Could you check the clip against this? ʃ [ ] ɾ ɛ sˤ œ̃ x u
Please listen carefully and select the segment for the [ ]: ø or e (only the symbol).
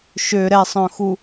ø